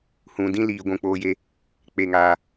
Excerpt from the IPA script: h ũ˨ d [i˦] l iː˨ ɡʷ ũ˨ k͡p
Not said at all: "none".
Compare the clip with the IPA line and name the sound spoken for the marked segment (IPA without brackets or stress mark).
ĩ˦